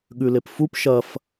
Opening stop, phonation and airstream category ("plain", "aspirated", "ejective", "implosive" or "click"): implosive